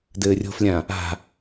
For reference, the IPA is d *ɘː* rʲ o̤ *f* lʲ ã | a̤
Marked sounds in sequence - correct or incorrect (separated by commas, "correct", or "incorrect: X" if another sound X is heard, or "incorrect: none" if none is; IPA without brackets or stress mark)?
correct, correct